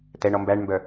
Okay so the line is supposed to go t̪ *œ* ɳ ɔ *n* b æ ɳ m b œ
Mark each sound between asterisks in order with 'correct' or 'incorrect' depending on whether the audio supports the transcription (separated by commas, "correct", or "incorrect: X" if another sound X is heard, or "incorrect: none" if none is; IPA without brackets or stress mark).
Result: incorrect: ɛ, incorrect: m